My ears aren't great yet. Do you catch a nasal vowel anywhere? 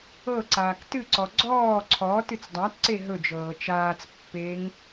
no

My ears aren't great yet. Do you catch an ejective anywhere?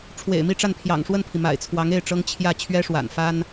no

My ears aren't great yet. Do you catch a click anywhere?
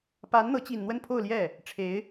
no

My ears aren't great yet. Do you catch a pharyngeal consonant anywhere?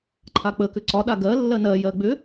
no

